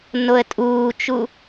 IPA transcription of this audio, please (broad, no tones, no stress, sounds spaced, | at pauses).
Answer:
n o ə̯ tʼ uː t͡ʃ u